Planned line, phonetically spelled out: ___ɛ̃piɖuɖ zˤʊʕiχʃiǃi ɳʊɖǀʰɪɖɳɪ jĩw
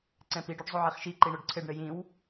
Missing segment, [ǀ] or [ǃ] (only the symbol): ǀ